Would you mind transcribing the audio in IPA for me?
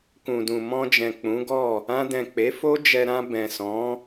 k ũ˨ d ũ˨ m ɔ̃˧ d͡ʒ ɛ̃˨ k͡p ũ˨˦ ɡ ɔ˦˨ | ã˧ d ɛ̃˨ k͡p e˨˦ f o˦ d͡ʒ ɛ˧ ɾ ã˧ b ɛ̃˨ s ɔ̃˨˦

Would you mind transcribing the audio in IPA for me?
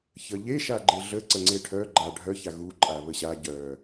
ç ə ʎ e ʃ a ɡ͡ǃ e ɮ ə ǀ ə ŋ͡ǀ e ʈʰ œ ɡ͡ǃ a ɖʱ œ ç a ɣ u ǃʼ a β ə ɕ a ɟ œ

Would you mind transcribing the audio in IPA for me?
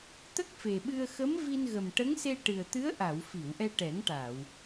t̪ ə˦˥ k̚ f e˨˩ ɓ ɨ˧ ə̯ x ə˧˥ m v i˧ n ɣ ə˨˩ m ʈ ə˧˥ ŋ s e˧ ʈ ɨ˨˩ ə̯ t̪ ɨ˧˥ ə̯ ʔ a˨˩˨ w f i˨˩˨ w ʔ ɛ˧ ʈ ɛ˨˩˦ ŋ ʈ a˨˩˨ w

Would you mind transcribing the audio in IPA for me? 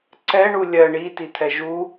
ǀ ɛ ɳ u lʲ ɜ ɳ i t i t̪ʰ ɛ ʒ u

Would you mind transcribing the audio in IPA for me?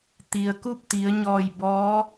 t̪ i˩ ə̯ k u˥˨ p̚ t̪ i˩˧ ə̯ ɲ ɔː˧˩ j b ɔː˧˥

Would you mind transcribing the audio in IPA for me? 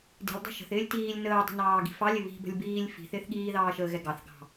d i̤ lʲ dˤ ɑ̤ ʃ ə̤ θ ɪː lʲ t iː lʲ n əː dˤ ə̤ n ɑː ɡ i̤ f ɑ lʲ ɪ β i̤ b ə̤ lʲ b iː lʲ f i̤ θ ɪː θ ɠ iː ð ɑː ʃ əː ɣ ɛ ɡ ɑ θ ɡ ɑ̤

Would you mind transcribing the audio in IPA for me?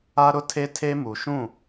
a˦ ɾ ʊ˦ tʰ e˦ tʰ e˦ m u˨ ʃ ũ˦˨

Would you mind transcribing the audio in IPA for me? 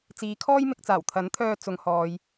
t͡s iː˨˧ kʰ ɔː˥ j m ɪ˧ k̚ t͡s aː˨˩ w t̪ʰ ɐ˨˥ n t̪ʰ œː˧ t͡s ʊ˨˧ ŋ h ɔː˨ j

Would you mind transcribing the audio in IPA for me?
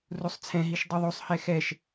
r u sˤ t͡sʰ ɛ̃ ɦ i ʃ dˤ u ðˤ u sˤ h ɛ x ɛ ʃ

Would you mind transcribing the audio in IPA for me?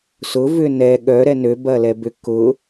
s ʊ v ʏ n ɛ ɠ œ ɾ ɛ n ø b ɐ l ɛ b ʏ k ʊ

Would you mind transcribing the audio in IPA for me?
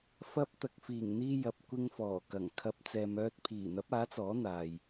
f ɐ˧ p̚ t̪ ɐ˨ k̚ f iː˨˩ ŋ n̪ iː˧ j ɐ˨ p̚ kʷ ɪ˧ ŋ f ɔː˨˩ k ɐ˨˩ ŋ kʰ ɐ˨˥ p̚ t͡s ɛː˨ m œː˧ t̚ pʰ iː˨˩ n̪ ɐ˨˥ p̚ aː˨˥ t͡s ɔː˨˥ n̪ aː˨ j

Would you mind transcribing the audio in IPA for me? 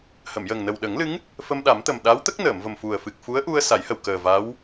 h əː˨˩˨ m j ə˨˩ ŋ n ə˨˩ w ɗ ə˨˩˦ ŋ l ɨ˧˥ ŋ | f ə˧ m ɗ a˨˩˦ m t̪ ə˨˩ m ɗ a˧˥ w t̪ ə˦˥ k̚ n əː˨˩˨ m v ə˨˩ m f u˨˩ ə̯ f ɨ˨˩ k̚ f u˧˥ ə̯ ʔ u˧ ə̯ s a˨˩˦ j h ə˨˩ w k əː˨˩ v a˧˥ w

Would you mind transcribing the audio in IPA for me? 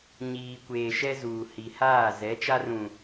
ɲ iː˨ kʷ eː˨ ʃ ɛ˦ z uː˨ h i˨ h aː˦˨ z ɛ˨˦ t͡ʃ a˦ r ũ˨

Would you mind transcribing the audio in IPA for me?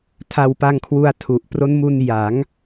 tʰ a˧ w p a˧ ŋ kʰ w u˧ a̯ tʰ u˨˩ ʔ p r o˦˥ n m u˧ n j a˩˦ ŋ

